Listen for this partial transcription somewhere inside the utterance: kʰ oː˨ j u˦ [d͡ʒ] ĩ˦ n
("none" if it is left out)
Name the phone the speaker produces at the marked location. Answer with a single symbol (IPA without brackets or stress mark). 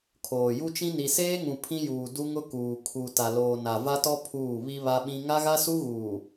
t͡ʃ